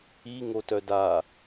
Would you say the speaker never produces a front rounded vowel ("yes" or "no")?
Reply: no